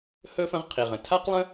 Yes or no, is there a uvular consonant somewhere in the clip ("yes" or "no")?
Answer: yes